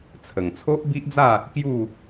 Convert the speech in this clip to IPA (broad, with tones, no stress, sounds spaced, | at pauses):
t͡sʰ ə˨˩ ŋ t͡sʰ o˦ ʔ b i˦ ʔ d͡z a˥˧ | k j u˥˧